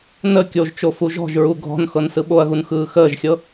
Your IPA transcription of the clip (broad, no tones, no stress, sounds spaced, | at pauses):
n ə kʲ o ʒ t͡ʃ o f u ʒ ɔ̤ ʒ ɹ u ɡʱ ɔ̤ n x ɤ n s ɯ ɓ o ɐ̯ ɣ u n x ɯː x əː ʒ xʲ ɤ